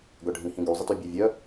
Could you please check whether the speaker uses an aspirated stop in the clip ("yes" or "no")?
no